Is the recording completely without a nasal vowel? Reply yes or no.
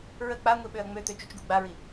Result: yes